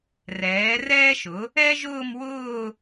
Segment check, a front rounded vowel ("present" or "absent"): absent